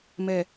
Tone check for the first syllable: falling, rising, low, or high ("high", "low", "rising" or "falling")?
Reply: low